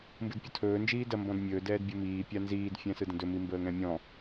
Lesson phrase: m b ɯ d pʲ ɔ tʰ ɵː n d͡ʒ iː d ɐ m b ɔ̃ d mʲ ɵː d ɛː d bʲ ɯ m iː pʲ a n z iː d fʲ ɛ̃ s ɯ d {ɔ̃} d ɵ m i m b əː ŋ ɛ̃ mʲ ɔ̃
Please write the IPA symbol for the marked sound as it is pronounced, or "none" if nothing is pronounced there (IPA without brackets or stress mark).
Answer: ə̃